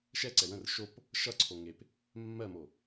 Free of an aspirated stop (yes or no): no